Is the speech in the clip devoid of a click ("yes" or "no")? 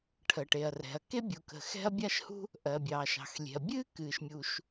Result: yes